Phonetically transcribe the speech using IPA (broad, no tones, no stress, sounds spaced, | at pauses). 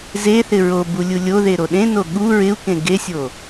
z e θ ɪ ɹ o b u lʲ u lʲ o ð e ɾ o ɗ ẽ n o ɠ u ɹ ɪ u̯ k ẽ ɡ e sʲ o